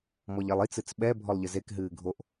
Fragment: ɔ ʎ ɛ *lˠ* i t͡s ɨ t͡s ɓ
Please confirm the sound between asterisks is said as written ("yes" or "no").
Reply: yes